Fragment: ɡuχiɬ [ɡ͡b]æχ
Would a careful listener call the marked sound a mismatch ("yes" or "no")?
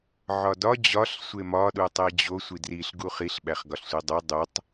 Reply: yes